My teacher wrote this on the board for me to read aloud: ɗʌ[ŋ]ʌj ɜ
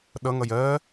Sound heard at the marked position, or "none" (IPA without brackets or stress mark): ŋ